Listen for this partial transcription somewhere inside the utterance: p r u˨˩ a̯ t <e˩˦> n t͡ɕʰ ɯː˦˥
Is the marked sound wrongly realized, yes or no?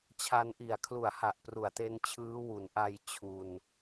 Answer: yes